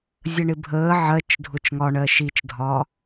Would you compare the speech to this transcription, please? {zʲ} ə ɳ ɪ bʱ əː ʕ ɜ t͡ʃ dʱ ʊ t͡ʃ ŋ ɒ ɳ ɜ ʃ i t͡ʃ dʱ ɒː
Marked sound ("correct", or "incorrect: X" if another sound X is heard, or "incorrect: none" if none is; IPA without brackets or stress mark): correct